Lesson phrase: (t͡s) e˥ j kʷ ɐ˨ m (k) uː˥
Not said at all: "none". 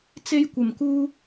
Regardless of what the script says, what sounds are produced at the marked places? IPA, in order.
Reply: t͡s, k

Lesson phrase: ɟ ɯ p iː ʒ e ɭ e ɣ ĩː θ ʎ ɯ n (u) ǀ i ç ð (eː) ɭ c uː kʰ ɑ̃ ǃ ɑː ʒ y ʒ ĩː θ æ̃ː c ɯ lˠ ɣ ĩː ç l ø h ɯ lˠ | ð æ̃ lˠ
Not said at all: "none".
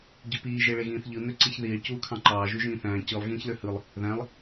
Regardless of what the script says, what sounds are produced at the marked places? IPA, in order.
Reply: ø, iː

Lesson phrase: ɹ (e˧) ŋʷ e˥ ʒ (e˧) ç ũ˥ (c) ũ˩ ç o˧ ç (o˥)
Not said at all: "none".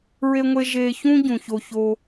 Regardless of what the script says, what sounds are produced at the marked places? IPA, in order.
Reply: e˥, e˧, ɟ, o˧

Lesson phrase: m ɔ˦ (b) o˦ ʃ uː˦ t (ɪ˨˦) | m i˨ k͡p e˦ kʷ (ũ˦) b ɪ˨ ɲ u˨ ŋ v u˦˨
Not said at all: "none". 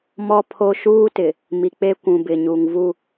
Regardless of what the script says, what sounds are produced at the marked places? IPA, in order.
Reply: pʰ, ɪ˨, ũ˨

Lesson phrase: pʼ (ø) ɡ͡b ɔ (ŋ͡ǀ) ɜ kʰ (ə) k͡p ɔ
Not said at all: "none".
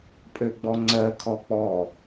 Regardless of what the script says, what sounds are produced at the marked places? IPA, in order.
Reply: ø, ŋ͡ǀ, ɔ

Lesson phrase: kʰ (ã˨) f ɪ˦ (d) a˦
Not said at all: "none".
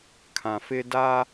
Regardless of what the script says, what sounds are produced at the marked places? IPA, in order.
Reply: ã˨, d

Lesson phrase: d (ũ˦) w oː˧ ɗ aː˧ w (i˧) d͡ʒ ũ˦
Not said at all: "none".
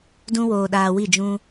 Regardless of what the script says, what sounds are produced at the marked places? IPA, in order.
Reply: ũ˦, i˦˨

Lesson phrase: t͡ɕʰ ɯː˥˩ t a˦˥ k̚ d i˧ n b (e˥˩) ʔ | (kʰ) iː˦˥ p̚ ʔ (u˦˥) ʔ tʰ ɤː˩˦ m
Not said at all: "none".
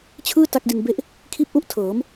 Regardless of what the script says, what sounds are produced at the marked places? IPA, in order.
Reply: e˥˩, kʰ, u˦˥

